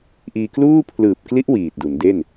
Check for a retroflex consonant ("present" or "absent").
absent